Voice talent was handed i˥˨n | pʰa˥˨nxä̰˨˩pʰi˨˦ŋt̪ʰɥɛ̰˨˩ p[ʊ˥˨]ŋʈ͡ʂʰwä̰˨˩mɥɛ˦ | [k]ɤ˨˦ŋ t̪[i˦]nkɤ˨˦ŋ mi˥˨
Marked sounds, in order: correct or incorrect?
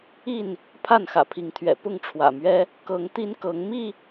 correct, correct, correct

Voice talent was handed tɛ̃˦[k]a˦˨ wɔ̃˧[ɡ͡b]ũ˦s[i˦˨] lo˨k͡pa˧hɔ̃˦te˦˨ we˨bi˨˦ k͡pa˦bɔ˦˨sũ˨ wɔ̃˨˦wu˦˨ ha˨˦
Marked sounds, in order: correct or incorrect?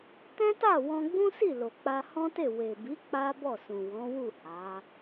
incorrect: t, correct, correct

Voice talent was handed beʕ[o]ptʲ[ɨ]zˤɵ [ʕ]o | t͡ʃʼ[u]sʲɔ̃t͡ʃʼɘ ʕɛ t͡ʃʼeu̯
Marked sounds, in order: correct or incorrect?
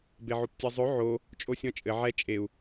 correct, incorrect: ɛ, correct, incorrect: o

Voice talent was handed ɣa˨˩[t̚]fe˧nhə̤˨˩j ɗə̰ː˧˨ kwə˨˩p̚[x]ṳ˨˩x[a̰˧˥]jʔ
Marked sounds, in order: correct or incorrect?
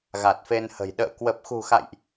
correct, correct, incorrect: a̰˧˨

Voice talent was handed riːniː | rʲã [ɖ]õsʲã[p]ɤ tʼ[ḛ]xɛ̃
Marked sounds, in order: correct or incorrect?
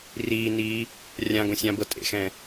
incorrect: ɡ, incorrect: b, correct

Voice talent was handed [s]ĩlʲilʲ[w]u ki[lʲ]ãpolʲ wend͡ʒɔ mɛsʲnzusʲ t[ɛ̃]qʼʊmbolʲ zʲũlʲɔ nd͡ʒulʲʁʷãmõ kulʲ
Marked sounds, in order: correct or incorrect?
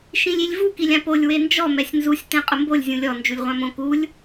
incorrect: ʃ, incorrect: v, correct, correct

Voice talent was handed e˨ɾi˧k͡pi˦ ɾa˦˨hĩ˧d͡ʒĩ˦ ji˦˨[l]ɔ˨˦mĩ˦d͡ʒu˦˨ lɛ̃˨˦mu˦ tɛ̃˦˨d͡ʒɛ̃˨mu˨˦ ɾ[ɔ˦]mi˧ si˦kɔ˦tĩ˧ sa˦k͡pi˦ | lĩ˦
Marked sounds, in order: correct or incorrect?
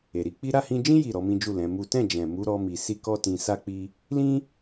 incorrect: ɾ, correct

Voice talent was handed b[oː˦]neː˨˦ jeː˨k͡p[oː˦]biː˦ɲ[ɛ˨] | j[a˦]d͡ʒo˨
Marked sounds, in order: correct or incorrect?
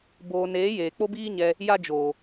incorrect: oː˨, incorrect: o˦, incorrect: ɛ˧, correct

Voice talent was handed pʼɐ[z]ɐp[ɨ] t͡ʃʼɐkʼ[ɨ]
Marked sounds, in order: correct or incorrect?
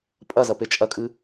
correct, incorrect: e, correct

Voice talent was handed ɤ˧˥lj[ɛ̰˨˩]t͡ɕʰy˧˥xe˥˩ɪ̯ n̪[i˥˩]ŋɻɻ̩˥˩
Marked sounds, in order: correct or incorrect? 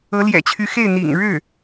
correct, incorrect: ḭ˨˩

